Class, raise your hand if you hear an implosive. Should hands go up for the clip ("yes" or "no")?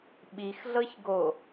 yes